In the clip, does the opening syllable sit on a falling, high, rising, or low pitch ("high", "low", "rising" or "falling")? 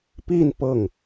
falling